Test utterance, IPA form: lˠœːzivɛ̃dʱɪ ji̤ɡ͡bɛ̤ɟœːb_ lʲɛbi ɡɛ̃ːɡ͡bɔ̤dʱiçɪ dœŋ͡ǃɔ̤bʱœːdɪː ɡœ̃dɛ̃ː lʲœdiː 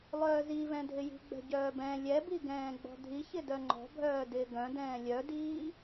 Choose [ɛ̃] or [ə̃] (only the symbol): ɛ̃